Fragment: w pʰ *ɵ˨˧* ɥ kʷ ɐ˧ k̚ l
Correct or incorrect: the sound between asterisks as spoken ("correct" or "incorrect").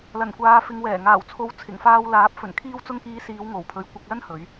correct